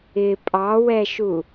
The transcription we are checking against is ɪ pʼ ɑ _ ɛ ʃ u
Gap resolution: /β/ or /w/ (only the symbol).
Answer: w